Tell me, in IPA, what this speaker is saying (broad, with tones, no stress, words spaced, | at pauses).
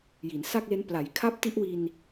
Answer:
ji˩˦nsa˥˩k̚le˦˥n pla˩˦j kʰa˦˥p̚ti˦˥ʔwi˧n